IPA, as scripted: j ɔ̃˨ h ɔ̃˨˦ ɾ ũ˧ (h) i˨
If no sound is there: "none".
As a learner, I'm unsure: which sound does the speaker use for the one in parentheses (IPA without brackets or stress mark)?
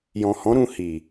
h